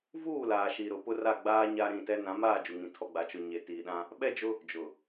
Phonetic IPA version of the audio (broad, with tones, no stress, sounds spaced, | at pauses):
v uː˦˨ l aː˨ ʃ i˨ ɾ ʊ˨ p ʊ˦ r a˦˨ ɡ͡b aː˦ ɲ a˦ ɾ ĩ˦˨ t ɛ˦ n ã˨˦ m aː˦˨ d͡ʒ u˨ ŋ ĩ˨ tʰ ɔ˨ ɡ͡b a˨ t͡ʃ ʊ˨ ɲ e˨ t iː˨ ɗ ã˦ | ɓ ɛ˦ d͡ʒ ʊ˦ | d͡ʒ ʊ˨